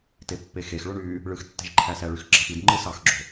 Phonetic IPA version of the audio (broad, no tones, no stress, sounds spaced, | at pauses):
t e pː e x e x ɭ o ɳ y | ɭ ɯ x tː e̤ ʒ ǃʰ æ s æ ɭ y x ɡ͡ǁ ɑ x i d ŋ͡ǃ ɯ s ɑ x ɡ͡ǁ o̤